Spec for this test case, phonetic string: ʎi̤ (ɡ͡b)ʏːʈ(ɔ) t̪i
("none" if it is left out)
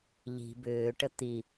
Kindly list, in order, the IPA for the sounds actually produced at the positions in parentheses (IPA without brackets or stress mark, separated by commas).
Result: b, ə